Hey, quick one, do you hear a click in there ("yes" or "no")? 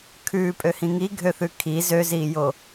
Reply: no